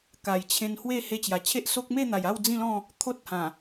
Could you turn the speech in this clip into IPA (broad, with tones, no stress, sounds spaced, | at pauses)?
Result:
k a˨˩ j t͡ɕʰ ẽ˧ n h w e˥˧ h e˧ t͡ɕ j a˨˩ t͡ɕʰ e˦ ʔ s o˦ k̚ m e˥˧ n̪ a˨˩ j a˥˧ w d͡z ĩ˥˧ l ɔ̃˥˧ | t̪ʰ o˦ t̚ h ã˨˩